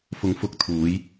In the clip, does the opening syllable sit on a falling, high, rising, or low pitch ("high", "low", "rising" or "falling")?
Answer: rising